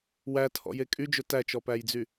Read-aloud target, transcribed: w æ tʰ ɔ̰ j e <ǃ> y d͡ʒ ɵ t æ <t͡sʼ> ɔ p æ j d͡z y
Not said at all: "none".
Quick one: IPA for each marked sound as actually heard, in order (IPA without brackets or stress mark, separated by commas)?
kʼ, t͡ʃ